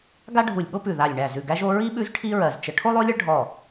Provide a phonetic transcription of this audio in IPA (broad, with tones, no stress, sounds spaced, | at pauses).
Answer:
ɡ a˥ ɖʱ u˧˩ lʲ ɠ o˥ p ʉ˧˩ ð a˧˩ lʲ ɳ æ˧˩ z ʉ˧˩ ɡ æ˥ ʒ o˥ ɹ i˥ ɓ ʉ˥ z ʈʰ i˥ ɹ ɜ˧˩ z t͡ʃ ə˧˩ ʈʰ o˥ lˠ o˥ lʲ ə˥ ɭ ɖʱ ɔ˧˩